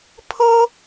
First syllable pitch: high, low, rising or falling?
high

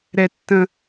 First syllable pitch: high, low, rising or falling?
high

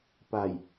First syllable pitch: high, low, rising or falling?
low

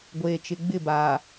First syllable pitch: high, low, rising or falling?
low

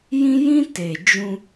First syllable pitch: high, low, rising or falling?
high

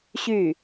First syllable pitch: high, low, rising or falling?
falling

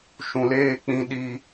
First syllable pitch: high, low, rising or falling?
low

